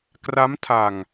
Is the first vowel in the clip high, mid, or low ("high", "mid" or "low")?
low